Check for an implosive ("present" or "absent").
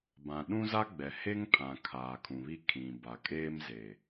present